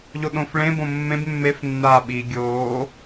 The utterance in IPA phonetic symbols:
ʎ o ɗ õ f ɭ ẽ b õ mː ẽ b mː e f nː aː ɓ i ɡʲ oː

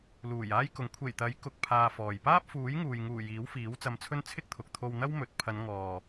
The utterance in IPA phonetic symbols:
l uː˨˩ j aː˥ j k ʊ˨˥ ŋ kʷʰ e˨˩ j t̪ ɐ˨˥ j k ʊ˧ k̚ pʰ aː˧ f ɔː˨ j p aː˥ p̚ f uː˨˥ j ŋ uː˨ j ŋ uː˨˩ j iː˨˥ w f iː˨˥ w t͡s ɐ˧ m t͡sʰ ɵ˥ n t͡sʰ ɪ˥ k̚ t̪ʰ ʊ˨ k̚ t̪ʰ o˧ w n̪ ɐ˥ w m ɵ˨˥ t̚ pʰ ɐ˨˧ n ŋ ɔː˨

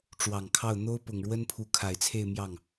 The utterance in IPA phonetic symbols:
ʈ͡ʂ w ɑ˨˩ ŋ kʰ ɑ˥˩ ʊ̯ n̪ o˥ ʊ̯ p ʊ˨˩ ŋ ɻ w ə˥ n pʰ u˧˥ kʰ a˨˩ ɪ̯ t͡sʰ e˥˧ ɪ̯ m j ɑ˥˩ ŋ

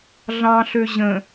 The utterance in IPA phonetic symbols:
ɮ ɑ̃ ɬ ø ʑ ə̃

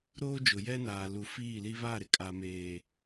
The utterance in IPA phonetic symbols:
ɾ oː˦ d͡ʒ ʊ˨ j ɛ˦ n aː˨ l u˨ f iː˦˨ l i˦ β a˦˨ ɾ ɪ˦ kʼ a˨ m eː˨

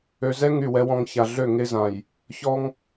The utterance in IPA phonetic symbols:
ø˨ z ɛ˦ ŋ y˦˨ w ɛ˦ w ɔ̃˦ ŋ ç a˨ ɮ ø˦˨ ŋ e˦ z ã˨ j | ç ɔ˦ ŋ

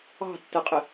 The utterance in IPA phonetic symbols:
ɑ̤ tː ɜ qʼ ɪ

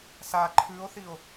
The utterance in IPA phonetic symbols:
s a ǃʰ ʉ o̯ θ i o̯

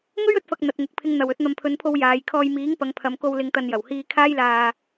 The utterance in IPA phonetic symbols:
ŋ ɵ˥ ɥ ɵ˨˥ t̚ f ɐ˨ k̚ n̪ ɐ˨ t̚ ŋ ʊ˨ k̚ pʰ ɪ˨ ŋ n̪ ɐ˨˩ w ɵ˧ t̚ n̪ ɐ˨ m pʰ ɵ˨˧ n pʰ o˧ w j aː˨ j kʰ ɔː˧ j m iː˨˥ ŋ p ɐ˨˧ ŋ pʰ ɐ˨˧ m k o˧ w l ɪ˨ ŋ t̪ ɐ˨ n j ɐ˨˩ w h iː˧ kʰ aː˥ j l aː˧

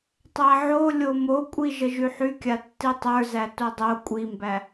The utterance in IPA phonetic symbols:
tˤ æ ʕ o lʲ o m o kʷʼ i ʒ ə ʒ y ħ y kʲ a tː i tˤ ə˞ z æ t o dˤ o kʷʼ i m b æ

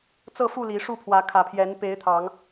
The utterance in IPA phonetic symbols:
t͡s ɤ˥˨ f u˥˨ l i˨˦ ʂ u˥˨ pʰ w ä˨˦ kʰ ä˨˩ pʰ j ɛ˨˦ n p e˨˦ ɪ̯ t̪ʰ ɑ˨˦ ŋ

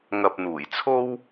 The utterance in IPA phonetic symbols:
ŋ ɐ˨ p̚ n̪ uː˨˩ j t͡sʰ o˥ w

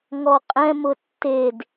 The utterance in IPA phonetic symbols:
ŋ ɔ qʼ ɛ̃ m ʊ tː e d

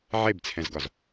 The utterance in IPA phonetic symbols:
ʕ e b t͡sʰ ɛ̃ z ɡ ɒ z

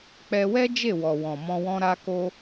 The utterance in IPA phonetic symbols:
k͡p ɛ˧ w ɛ˦ d͡ʒ e˦˨ w ɔ˨ w ɔ̃˨ m ɔ̃˧ w ɔ̃˧ ɾ a˧ k o˧

